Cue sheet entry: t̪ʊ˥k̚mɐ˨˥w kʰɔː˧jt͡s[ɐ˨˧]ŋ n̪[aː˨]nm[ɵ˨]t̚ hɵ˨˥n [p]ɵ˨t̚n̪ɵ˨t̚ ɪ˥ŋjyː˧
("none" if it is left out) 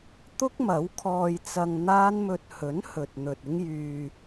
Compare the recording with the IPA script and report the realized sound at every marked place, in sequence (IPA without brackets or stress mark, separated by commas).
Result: ɐ˧, aː˥, ɵ˧, h